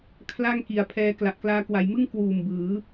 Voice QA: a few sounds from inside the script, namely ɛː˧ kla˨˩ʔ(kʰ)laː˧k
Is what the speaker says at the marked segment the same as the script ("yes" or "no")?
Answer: no